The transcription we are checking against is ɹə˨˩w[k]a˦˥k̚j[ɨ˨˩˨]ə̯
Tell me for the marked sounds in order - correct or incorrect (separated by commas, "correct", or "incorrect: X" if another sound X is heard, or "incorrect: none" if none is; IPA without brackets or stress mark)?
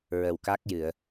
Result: correct, correct